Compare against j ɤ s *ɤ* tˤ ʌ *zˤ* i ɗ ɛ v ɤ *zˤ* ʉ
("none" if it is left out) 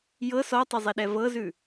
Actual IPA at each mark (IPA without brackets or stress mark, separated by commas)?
ɔ, zˤ, z